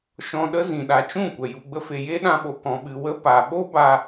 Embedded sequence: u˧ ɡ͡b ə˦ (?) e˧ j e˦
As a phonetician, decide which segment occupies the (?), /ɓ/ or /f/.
f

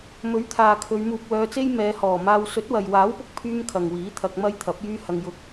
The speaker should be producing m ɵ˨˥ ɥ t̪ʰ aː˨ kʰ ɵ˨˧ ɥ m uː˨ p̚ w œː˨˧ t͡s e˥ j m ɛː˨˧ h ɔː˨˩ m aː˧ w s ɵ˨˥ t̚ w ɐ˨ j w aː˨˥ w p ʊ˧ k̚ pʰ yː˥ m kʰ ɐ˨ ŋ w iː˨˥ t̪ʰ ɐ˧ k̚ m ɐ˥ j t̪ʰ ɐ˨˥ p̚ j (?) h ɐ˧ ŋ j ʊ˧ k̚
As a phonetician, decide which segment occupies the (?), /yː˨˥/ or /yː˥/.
yː˥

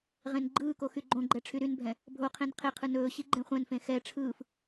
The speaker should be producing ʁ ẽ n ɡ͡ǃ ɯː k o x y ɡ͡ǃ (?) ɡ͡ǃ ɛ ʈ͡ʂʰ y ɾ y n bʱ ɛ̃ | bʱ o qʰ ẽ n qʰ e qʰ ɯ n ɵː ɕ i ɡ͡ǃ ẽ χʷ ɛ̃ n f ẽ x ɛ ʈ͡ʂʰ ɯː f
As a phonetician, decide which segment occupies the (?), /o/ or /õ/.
õ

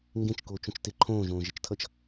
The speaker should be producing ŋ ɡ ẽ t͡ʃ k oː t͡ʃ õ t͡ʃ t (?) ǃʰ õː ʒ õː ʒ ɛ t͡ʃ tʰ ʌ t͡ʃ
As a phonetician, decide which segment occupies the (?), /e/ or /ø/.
e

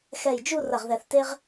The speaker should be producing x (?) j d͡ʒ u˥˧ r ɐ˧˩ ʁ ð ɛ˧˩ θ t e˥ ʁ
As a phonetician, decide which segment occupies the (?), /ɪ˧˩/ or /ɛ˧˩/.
ɛ˧˩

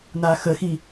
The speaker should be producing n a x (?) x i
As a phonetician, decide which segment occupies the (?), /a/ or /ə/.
ə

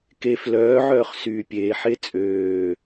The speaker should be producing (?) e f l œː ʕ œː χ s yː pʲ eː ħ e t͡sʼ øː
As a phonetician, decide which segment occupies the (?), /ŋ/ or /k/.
k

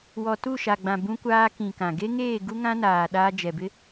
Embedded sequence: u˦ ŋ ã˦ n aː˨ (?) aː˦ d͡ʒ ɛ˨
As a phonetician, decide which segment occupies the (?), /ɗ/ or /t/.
ɗ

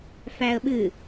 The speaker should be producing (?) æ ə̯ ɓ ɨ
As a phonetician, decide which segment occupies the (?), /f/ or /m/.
f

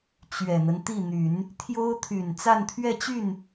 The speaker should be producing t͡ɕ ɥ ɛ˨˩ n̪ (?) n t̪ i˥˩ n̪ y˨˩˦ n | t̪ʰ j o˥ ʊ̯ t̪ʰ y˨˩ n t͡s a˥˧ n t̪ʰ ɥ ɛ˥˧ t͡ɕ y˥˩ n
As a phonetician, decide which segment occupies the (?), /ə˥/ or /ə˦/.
ə˦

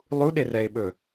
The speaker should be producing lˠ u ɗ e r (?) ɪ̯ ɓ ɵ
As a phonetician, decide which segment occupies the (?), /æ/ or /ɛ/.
ɛ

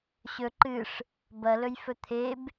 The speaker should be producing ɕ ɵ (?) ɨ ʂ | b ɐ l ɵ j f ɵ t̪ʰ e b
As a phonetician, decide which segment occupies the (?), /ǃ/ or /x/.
ǃ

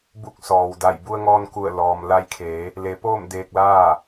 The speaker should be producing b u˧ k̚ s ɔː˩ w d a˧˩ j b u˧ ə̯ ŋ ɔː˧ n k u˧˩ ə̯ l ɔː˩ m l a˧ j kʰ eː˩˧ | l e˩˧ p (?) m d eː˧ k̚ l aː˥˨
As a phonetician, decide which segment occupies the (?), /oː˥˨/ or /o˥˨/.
oː˥˨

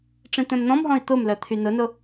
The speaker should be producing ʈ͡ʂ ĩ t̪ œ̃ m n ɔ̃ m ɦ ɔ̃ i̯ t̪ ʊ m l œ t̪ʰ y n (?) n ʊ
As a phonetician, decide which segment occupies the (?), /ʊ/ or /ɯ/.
ʊ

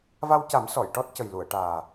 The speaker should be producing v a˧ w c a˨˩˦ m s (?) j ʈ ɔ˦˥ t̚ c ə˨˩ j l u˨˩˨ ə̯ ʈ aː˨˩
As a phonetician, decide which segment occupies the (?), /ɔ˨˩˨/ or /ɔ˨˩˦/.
ɔ˨˩˨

